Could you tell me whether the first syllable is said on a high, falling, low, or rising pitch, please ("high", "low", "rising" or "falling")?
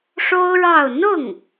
high